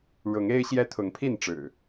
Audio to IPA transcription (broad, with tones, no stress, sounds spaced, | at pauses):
ɻ ʊ˨˦ ŋ e˦ ɪ̯ ɕ j ɛ˦ t̪ʰ ʊ˨˦ ŋ pʰ i˥˨ n ʈ͡ʂ ɻ̩˨˩